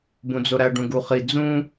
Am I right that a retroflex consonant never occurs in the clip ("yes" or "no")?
no